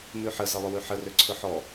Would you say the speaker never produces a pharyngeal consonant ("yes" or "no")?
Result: no